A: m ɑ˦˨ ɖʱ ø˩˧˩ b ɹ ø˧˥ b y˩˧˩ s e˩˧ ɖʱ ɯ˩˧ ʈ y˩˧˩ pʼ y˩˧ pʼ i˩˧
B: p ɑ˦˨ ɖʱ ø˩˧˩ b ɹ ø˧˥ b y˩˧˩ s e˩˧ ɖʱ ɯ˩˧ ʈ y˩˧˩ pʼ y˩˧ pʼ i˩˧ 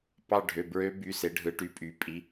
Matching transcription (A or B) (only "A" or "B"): B